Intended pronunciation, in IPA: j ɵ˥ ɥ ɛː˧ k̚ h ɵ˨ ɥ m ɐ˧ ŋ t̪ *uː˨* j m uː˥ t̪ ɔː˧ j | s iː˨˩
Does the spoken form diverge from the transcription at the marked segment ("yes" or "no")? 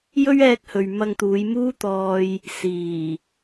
yes